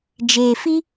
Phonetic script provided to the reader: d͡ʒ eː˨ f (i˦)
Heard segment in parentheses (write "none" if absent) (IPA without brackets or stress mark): i˦